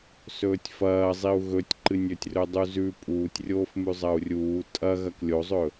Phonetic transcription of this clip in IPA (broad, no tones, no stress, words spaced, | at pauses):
sɵːtʲfɐːzˤiu̯ ɣɵtʲǃɨnʲɵtʲ rɵdˤuzʉ pʼuːtʲrʲoːfmʉ zˤɐu̯rʲuː tʼɐ ɣɐklʲozˤɵ